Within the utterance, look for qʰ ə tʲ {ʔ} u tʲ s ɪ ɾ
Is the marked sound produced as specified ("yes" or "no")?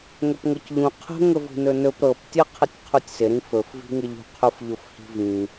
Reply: no